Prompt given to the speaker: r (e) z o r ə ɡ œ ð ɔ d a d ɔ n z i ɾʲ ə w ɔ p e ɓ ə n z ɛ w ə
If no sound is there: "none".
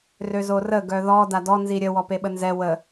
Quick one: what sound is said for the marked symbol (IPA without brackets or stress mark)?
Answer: ø